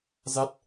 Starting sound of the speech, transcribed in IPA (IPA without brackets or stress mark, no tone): z